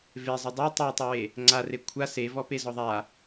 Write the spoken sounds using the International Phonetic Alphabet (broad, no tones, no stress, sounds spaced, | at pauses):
v e zˤ ɘ dˤ e tˤ e tˤ e w e | ŋ͡ǀ a r e kʷʰ a s e v ɔ p e z ɔ ðˤ a